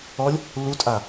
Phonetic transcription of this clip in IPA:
ɔlʲ | lutʼa

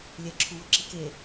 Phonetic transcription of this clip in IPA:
lʲɛǁʰuwɤǁi ke

